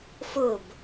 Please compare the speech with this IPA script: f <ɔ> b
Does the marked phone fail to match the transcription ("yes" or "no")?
yes